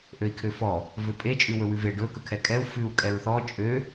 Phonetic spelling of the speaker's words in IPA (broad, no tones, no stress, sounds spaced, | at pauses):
ʔ ø i̯ kʰ ø f ɔ | v ø pʼ e t͡ʃʼ ʉ w ɵ w ʉ v e ɖ ɵ k ɵ kʰ ɛ kʼ ɛ u̯ f ʉ u̯ kʼ ɛ ɹ θ ɔ t͡ʃʼ ø